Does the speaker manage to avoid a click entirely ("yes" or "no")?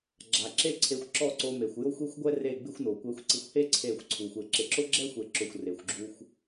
no